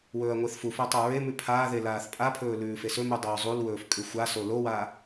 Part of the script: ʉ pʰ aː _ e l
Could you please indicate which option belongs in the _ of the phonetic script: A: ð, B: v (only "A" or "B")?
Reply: A